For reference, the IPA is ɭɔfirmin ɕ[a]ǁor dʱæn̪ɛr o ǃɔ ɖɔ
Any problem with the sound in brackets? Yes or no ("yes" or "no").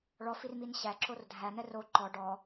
yes